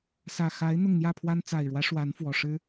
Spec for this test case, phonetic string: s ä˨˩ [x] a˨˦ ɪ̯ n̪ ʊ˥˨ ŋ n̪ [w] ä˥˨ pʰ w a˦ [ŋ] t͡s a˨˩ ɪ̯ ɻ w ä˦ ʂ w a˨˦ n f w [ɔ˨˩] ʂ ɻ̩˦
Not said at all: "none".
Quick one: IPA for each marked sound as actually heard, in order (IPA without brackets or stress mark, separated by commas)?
x, j, n, ɔ˨˩